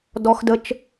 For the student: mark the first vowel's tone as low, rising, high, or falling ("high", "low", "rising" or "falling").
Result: high